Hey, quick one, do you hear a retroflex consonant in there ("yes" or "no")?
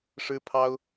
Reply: yes